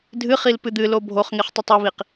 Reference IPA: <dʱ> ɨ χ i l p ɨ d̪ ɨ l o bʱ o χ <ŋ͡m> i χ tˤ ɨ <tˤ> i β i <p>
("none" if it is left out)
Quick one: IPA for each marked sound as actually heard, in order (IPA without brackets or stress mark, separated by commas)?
dʱ, ŋ, tˤ, q